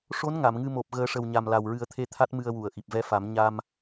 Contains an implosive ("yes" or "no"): no